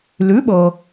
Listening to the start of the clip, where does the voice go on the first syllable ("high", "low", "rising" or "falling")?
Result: rising